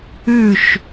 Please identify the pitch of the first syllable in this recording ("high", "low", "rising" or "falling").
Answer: falling